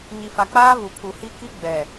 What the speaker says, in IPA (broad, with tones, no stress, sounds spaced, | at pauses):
ɲ i˨ f a˨ k͡p aː˦ β u˨ pʰ u˨ h i˦ k i˦ ɡ͡b ɛ˨